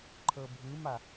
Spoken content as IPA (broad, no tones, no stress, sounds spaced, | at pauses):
ǃʰ ɤ bʱ ɯ m a